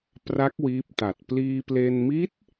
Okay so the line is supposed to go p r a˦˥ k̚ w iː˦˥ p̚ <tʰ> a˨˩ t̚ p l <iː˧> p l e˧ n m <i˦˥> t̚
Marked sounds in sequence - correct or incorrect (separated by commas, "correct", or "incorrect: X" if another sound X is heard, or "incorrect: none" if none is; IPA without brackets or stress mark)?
incorrect: t, correct, correct